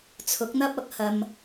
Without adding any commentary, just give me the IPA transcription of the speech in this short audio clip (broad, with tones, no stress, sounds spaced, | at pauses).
t͡sʰ ʊ˨˥ k̚ n̪ ɐ˥ p̚ ɐ˨˥ k̚ h ɐ˧ m